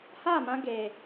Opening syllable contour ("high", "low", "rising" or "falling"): falling